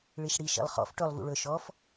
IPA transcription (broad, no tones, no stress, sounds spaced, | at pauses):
ɭ i ʃ ɽ i ʃ ḭ lˠ χ ɔ̰ f ʈ ɵ lˠ v ṵ ɭ ɵ ʃ ɔ f